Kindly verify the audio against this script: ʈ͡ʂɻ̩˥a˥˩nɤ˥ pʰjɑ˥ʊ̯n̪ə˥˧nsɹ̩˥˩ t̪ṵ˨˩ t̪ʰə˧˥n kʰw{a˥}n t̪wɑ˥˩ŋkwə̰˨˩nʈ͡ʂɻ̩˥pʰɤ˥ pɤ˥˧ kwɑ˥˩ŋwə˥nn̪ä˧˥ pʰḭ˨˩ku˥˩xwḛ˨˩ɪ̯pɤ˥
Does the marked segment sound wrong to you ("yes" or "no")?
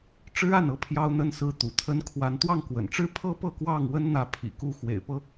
yes